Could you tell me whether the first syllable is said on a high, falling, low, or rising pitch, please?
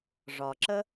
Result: low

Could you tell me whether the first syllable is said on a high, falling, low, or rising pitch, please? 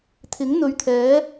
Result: rising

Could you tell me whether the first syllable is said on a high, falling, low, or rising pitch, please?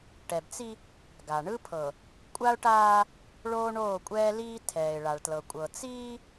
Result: low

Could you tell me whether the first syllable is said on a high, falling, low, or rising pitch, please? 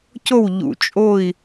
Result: falling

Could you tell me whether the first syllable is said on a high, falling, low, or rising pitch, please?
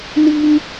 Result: high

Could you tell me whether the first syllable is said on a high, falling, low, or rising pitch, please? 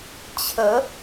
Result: rising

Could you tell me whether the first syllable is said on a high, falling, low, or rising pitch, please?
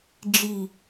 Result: low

